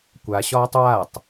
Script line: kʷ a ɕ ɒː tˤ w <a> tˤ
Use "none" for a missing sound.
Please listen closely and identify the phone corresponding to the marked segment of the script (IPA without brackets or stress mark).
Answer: a